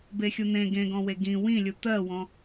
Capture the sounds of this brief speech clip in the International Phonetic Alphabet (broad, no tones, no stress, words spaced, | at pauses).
bexʲun̪ẽ ɡẽɡɔ̃we ɡĩ wĩlʲu t̪ɜwɔ̃